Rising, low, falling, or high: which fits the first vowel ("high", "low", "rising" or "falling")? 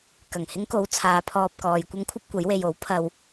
low